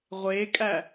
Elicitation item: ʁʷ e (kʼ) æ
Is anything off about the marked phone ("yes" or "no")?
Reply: no